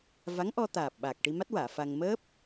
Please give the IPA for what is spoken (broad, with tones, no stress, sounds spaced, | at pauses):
v a˧˥ ŋ ʔ ɔ˧ t̪ aː˨˩ p̚ ɓ aː˨˩ k̚ ʈ i˧ m a˦˥ t̚ w aː˨˩˨ f a˧ ŋ m əː˦˥ p̚